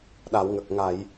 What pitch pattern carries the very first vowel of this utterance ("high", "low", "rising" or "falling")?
low